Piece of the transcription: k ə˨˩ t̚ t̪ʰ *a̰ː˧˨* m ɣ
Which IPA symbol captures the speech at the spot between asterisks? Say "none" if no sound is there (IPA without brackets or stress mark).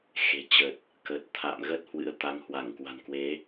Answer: a̰ː˧˨